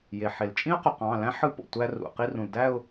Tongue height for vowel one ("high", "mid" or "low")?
mid